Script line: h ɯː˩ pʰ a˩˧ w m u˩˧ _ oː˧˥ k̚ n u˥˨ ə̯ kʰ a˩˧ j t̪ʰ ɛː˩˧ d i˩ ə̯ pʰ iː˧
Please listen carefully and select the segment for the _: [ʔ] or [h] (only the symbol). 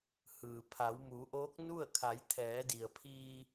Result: ʔ